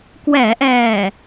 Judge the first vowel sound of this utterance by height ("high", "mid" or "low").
mid